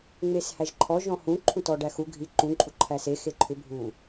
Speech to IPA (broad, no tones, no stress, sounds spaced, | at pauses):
ŋ͡m e s h æ ʒ ǃʰ ɔ ʒ ɔ̃ h ũ ǃʰ ũ t ɔ ɖ æ x u ɡʱ i ǃ ũ ǃʼ u ǃʰ æ s e x e ǃʰ ʏ bʱ u